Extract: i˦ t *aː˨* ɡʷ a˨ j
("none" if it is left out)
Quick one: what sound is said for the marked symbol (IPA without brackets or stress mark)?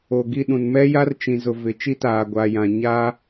aː˨